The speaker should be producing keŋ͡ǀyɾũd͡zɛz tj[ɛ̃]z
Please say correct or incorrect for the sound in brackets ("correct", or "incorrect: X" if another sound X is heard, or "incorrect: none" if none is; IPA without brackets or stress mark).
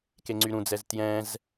correct